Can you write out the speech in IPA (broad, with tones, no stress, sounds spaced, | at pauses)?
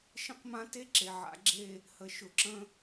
ʃ ə̃˦ q m ã˦ t e˦ ǁ e˨ ʕ a̰˨˦ ɡ͡ǁ e˦˨ | h ə˨ ʃ ʊ˨ ǁ ə̃˦